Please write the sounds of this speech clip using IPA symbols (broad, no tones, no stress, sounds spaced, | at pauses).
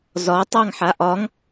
z ɒ tˤ ɑ ŋ ħ a ʔ ɒ ŋ